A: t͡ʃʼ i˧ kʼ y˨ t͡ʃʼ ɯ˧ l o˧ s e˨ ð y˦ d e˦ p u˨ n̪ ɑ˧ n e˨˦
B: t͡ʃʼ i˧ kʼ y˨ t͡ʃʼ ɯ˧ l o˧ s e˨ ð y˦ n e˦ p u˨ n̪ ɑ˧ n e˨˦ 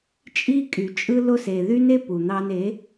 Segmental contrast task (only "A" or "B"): B